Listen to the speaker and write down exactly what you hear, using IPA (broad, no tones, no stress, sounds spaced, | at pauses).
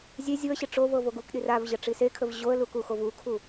zʲ e zʲ u ə̯ ɕ ɪ ʈ͡ʂ o v ɤ v o ɡ u k ɗ i r a v ʑ ə ʈ͡ʂ i s e kʰ ə v ʑ o ə̯ l u k u x o v u kʰ u